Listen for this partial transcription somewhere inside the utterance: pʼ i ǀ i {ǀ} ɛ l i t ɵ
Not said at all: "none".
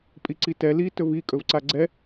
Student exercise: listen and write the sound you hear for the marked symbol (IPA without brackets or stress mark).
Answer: t